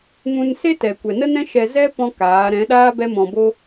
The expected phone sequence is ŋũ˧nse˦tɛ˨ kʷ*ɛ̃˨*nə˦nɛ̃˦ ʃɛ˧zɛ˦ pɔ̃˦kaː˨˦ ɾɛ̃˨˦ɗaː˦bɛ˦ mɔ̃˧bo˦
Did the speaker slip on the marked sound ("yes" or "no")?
yes